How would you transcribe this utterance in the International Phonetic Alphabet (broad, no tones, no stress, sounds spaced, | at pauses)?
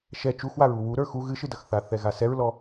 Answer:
ʃ ɛ t͡ʃ u x w a ɹ u w u ɾ ə˞ x u ɣ ɨ ʃ ɨ d ɐ x θ a θ ɛ ɣ a s ɛ ɹ l ɔ